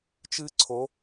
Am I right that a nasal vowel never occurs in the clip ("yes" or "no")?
yes